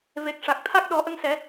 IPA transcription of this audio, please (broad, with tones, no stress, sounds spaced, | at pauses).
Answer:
v e˨˩ k̚ ʂ a˨˩ k̚ t̪ʰ a˦˥ k̚ ɗ ɔ˨˩˦ ʔ ə˧ ŋ s ɛ˨˩˦